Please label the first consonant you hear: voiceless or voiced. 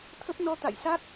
voiceless